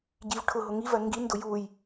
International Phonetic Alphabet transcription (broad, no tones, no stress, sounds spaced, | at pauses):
ɟ i v ʈʰ ʊ ɦ ʊ ŋ i v ɜ ŋ ɡ i n d ʊ j u j